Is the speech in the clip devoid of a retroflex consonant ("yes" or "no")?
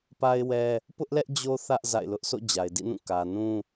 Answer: yes